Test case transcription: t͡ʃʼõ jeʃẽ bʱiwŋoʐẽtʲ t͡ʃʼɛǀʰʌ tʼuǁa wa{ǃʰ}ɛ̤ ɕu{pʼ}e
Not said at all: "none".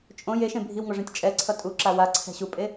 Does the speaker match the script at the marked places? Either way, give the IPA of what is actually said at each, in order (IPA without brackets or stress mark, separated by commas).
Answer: ǀʰ, pʼ